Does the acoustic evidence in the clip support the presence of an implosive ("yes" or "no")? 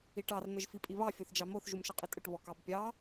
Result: no